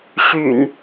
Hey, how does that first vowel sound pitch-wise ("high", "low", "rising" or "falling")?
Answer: low